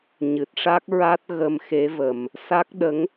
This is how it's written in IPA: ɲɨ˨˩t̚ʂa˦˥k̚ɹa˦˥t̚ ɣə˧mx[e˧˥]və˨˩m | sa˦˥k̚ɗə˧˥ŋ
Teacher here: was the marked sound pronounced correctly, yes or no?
yes